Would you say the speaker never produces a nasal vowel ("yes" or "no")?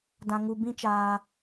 no